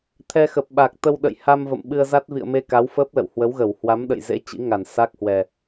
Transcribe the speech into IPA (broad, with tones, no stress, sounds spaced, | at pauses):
t̪ʰ ɛ˧ x ə˨˩ p̚ ɓ a˨˩ k̚ t̪ ə˧ w ɗ ə̰˧˨ j h a˧ m v ə̰˧˨ m ɓ ɨ˧ ə̯ z a˦˥ t̚ v ḭ˧˨ ə̯ m e˧ k a˨˦ w f əː˦˥ p̚ l ə̰˧˨ w h w ə˨˦ w ɣ ə˧˩ w h w a˨˦ m ɗ ə̰˧˨ j z ḛ˧˥ t͡ɕ ḭ˧˥ ŋ a˧˩ n s a˦˥ k̚ h w ɛ˨˩